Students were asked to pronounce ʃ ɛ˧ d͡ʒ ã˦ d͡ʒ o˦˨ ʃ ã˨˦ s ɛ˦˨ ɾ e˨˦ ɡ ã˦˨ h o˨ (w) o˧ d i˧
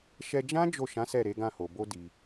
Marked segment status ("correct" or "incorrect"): incorrect